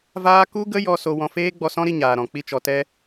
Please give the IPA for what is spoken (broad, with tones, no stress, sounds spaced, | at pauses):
v aː˧ k u˦ ɡ ə˦ j ɔ˧ s o˧ w ɔ̃˧ f eː˦ ɡ͡b ɔ˧ s ɔ̃˦ ɾ i˧ ɲ aː˨ ɾ ɔ̃˨ k͡p i˧ t͡ʃ ɔ˨ t ɛ˧